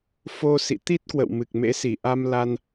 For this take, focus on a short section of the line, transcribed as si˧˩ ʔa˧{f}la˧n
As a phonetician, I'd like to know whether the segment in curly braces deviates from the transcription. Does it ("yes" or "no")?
yes